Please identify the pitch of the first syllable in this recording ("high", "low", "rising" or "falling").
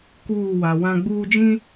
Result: falling